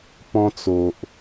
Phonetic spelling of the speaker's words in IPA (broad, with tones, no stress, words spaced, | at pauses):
pɔ̃˧t͡so˨ʔ